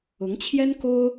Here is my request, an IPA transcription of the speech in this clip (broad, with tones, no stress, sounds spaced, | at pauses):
ʊ˧˥ ŋ t͡ɕʰ j ɛ˥ n k o˥ ʊ̯